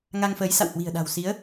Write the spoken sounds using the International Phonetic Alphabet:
ŋ a˧ ŋ f əː˨˦ j s a̰˧˨ w h w i̤˨˩ ə̯ ɗ a̤˨˩ w s i˨˦ ə̯

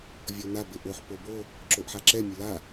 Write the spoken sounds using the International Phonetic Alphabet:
vʲ ɔ n a b ɪ ʔ o ħ p o b o | ǁ o ʔ ħ a ǁ ɛ mʲ ʊ l a

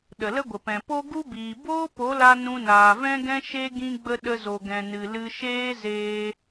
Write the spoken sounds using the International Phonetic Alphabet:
ɗ ə˨ l ə˦ ɡʷ ə˨ p ɛ̃˨ p o˦ ɡ u˦ b iː˨ b oː˦ p o˨˦ l a˧ n ũ˧ n aː˨ v ɛ̃˦ ɡ ɛ̃˦ ʃ e˦ ɡ ĩ˧ ɡ͡b ə˧ ɗ ə˧ z o˨ ɡ ɛ̃˨ n ɨ˨ l ɨ˧ ʃ eː˦ z eː˧

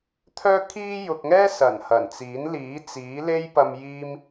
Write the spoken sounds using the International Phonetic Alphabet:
t̪ʰ œː˧ kʰ iː˧ j ʊ˨ k̚ ŋ ɛː˥ s ɐ˨˩ n h ɐ˨˩ n t͡s iː˨˥ n l iː˨˥ t͡s iː˨˥ l e˥ j p ɐ˧ m j iː˧ m

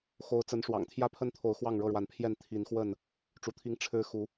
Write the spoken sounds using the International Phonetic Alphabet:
x o˨˦ ʊ̯ t͡s ə˨˦ n ʂ w ɑ̰˨˩ ŋ t̪ʰ j ä˦ pʰ ə˦ n t̪ʰ o˨˦ ʊ̯ x w ɑ˥˨ ŋ ɻ ɤ˥˨ ɻ w a˨˦ n pʰ j ɛ˥˨ n t̪ʰ i˨˦ n x w ə˥˨ n | ʈ͡ʂ u˨˦ t̪ʰ i˦ ŋ ʈ͡ʂʰ ɻ̩˦ x u˨˦

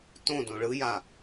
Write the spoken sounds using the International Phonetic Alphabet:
t õ d õ ɭ ɯ j a

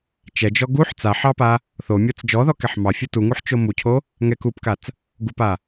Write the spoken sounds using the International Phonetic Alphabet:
t͡ʃ ɛ d͡ʒ ɔ ɡ u ħ t͡s a ħ ɑ p a | θ o mʲ ɔ t͡s d͡ʒ ɔ ð ɔ k ɛ ħ m ɑ fʲ u t u ŋ u ħ t͡ʃ o m u cʰ o | ŋ ɛ k u p k a t͡s | ɡ u p a

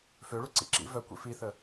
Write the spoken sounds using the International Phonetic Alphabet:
f ø ɭ u ǀ ḭ ǁ ḭ v œ kʷ ḭ f i θ ə

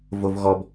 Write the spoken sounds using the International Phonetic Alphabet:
v o v ɣ ɔ b

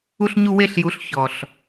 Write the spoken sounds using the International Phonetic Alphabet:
u˧ ɬ ɲ u˧ w e˧ ɬ j u˨˦ ɬ ç ɔ˨ ɬ

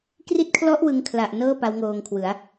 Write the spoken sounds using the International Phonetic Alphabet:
k r i˦˥ t̚ kʰ l ɔ˦˥ ʔ w ɯ˦˥ ŋ kʰ l a˨˩ ʔ n ɤː˥˩ p a˦˥ w ŋ oː˧ ŋ kʰ w ɯ˩˦ a̯

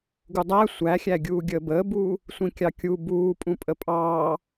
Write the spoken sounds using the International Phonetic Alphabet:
ɡ u dˤ æ sʷ æ xʲ æ ɡʲ uː ɡʲ əː b əː b uː | sʷ ĩ kʲ ɑ kʲ u b uː pʼ ũ pʼ ə pʼ ɑː

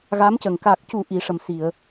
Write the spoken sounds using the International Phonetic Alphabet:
ɣ a˧˥ m c ə˨˩ ŋ k a˨˩ k̚ c u˨˩˦ ʔ i˨˩˦ ʂ ə˨˩ m s i˨˩˨ ə̯

